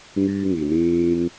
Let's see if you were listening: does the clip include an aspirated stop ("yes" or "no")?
no